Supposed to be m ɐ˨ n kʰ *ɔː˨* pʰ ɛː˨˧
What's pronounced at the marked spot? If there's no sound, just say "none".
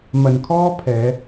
ɔː˥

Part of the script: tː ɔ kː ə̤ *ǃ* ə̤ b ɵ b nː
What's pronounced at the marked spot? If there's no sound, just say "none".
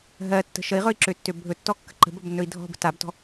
ǃ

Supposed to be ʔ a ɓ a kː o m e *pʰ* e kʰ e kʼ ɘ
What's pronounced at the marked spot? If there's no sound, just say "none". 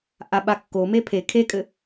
pʰ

